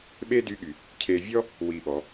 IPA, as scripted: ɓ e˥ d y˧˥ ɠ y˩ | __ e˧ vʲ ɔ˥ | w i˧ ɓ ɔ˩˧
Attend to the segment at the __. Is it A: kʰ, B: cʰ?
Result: B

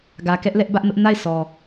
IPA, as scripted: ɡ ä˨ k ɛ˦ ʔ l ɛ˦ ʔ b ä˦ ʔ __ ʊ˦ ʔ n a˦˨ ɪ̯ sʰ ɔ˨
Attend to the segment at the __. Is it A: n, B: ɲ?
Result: A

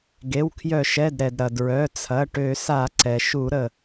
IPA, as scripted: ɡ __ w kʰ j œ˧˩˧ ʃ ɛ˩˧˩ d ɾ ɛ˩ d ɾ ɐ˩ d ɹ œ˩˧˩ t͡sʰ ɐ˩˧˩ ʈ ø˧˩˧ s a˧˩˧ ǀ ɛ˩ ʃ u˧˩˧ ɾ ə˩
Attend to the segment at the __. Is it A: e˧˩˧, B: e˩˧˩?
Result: B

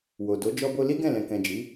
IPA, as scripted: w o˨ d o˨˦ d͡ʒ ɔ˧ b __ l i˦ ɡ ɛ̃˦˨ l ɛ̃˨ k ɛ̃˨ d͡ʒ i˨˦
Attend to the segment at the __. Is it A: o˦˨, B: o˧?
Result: B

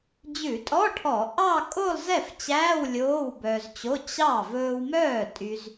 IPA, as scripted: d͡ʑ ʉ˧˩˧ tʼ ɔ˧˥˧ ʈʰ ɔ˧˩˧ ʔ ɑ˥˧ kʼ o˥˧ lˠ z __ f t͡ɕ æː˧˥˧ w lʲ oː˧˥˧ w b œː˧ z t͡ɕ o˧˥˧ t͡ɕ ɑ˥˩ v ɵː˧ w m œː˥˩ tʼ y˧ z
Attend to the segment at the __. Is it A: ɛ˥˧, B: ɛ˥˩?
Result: B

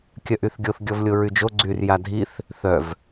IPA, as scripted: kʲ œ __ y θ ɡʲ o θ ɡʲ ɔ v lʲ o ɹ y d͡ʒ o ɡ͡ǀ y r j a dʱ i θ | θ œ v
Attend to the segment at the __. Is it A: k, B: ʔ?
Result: B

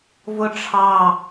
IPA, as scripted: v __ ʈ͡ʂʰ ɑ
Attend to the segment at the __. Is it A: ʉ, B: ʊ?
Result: B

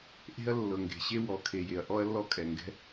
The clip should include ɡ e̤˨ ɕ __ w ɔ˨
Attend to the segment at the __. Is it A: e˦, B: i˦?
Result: A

